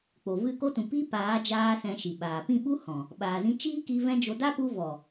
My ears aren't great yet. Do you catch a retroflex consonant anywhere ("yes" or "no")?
no